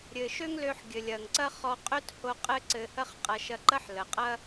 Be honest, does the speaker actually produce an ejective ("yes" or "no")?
yes